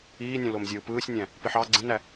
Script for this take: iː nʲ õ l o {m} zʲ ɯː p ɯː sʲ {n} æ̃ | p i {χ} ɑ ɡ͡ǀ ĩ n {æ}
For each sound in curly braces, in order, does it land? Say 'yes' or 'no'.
yes, no, no, yes

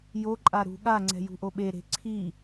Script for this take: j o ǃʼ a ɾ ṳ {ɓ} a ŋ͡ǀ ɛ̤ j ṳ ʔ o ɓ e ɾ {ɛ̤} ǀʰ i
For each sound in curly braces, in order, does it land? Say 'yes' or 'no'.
no, no

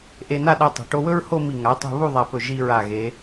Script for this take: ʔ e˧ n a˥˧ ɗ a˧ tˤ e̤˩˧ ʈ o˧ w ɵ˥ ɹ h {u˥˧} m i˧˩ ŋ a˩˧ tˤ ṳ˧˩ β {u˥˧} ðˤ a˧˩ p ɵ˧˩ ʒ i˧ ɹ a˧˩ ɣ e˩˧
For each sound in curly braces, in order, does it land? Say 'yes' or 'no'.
no, yes

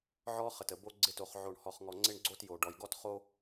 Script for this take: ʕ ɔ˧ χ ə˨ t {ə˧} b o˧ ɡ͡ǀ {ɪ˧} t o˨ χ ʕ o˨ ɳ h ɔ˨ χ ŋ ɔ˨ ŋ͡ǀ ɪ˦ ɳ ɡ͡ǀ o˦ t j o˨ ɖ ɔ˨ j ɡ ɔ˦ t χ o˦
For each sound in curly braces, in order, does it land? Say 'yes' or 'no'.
no, yes

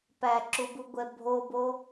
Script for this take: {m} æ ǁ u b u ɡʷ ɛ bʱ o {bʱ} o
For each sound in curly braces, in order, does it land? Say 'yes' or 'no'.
no, no

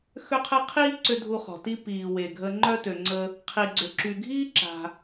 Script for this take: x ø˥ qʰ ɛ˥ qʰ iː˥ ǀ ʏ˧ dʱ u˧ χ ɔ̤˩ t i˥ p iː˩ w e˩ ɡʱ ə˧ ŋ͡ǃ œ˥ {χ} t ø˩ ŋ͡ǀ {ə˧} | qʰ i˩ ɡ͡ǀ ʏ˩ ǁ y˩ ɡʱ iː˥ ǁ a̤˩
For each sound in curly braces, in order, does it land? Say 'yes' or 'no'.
no, yes

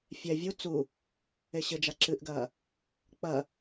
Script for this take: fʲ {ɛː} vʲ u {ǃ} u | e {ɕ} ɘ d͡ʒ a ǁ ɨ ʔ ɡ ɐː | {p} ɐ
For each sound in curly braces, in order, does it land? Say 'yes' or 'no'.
no, no, yes, no

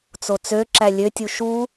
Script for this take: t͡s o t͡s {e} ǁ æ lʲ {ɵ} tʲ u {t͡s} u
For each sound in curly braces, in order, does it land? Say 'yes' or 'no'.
no, no, no

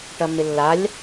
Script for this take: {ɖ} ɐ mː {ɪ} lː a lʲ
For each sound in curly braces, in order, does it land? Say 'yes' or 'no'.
no, yes

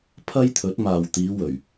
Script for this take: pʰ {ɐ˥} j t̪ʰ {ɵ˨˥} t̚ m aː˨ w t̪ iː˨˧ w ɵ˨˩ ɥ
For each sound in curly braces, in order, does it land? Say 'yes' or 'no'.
yes, yes

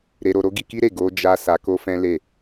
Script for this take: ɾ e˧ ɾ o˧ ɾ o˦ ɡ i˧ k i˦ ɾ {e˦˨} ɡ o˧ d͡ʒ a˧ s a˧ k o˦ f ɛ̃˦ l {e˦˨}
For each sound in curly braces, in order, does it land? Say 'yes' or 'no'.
yes, yes

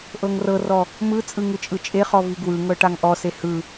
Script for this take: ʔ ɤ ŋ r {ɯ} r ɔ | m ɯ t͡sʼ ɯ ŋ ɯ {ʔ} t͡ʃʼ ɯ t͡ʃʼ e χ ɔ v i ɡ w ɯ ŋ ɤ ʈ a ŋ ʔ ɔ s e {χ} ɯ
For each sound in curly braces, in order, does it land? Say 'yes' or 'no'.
no, no, no

